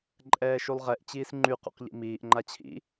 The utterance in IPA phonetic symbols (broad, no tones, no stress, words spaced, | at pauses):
ǃʼɛːʃulˠʁɛʔ t͡ɕiːsŋ͡ǃy qṵqʎḭmiːʔ ŋ͡ǃat͡ɕʰḭ